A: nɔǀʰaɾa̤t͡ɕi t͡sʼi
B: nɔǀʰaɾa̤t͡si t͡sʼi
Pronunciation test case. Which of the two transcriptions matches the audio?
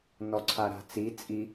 B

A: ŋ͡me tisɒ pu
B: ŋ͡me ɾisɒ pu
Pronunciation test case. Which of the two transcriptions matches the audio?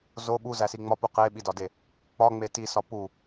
A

